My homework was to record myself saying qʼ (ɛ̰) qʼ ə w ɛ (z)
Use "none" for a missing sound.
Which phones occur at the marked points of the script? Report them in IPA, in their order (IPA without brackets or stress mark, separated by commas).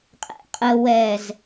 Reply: ɛ̰, z